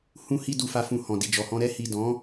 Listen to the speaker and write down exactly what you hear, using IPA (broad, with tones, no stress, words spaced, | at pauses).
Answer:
hũ˧hi˧ du˧fa˧fũ˧ hɔ̃˨di˨d͡ʒɔ˨hɔ̃˧ ɾɛ˧hi˨ dɔ̃˨˦